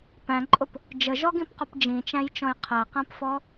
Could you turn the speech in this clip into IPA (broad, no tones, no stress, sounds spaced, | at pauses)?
p æ̃ ǃʼ ʊ p | d͡ʒ ə ʒ ɔ ɡ ĩ p q ʊ p d͡ʒ ĩ t͡ʃ æ̃ j t͡ʃ ɔ̃ j qʰ æ q æ̃ p f ɔ